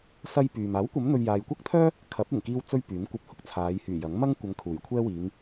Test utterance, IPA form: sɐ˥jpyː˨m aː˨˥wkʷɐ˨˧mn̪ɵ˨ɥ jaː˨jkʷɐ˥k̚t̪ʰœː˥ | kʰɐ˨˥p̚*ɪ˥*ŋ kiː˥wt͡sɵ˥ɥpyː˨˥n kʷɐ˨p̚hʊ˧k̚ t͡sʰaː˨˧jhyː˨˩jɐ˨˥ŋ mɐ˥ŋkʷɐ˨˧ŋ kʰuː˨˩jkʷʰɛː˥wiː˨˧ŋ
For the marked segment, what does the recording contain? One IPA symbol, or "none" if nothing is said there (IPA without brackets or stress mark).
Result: ɪ˨˩